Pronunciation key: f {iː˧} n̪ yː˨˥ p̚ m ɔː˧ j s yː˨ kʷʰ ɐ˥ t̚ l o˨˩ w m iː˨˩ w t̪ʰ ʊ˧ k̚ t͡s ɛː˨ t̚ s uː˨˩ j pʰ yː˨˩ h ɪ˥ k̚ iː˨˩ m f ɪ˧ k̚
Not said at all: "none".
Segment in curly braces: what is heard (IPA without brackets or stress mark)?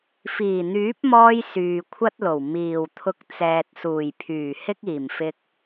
iː˨˩